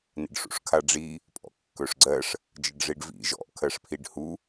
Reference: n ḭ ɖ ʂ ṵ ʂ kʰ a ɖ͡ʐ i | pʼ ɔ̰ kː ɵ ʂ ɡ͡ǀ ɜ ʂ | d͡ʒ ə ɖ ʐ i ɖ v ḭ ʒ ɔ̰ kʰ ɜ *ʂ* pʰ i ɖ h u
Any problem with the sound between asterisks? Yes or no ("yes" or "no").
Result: no